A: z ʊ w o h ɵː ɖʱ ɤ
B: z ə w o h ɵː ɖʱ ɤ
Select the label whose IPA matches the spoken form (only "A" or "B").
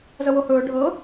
B